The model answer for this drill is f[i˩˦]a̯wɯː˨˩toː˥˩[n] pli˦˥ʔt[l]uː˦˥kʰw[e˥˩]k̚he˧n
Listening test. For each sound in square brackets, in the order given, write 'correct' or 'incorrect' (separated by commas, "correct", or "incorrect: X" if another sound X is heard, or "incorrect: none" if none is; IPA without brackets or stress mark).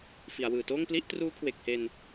correct, incorrect: ŋ, incorrect: r, incorrect: e˨˩